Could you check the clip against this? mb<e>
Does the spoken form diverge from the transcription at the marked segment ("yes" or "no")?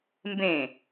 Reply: yes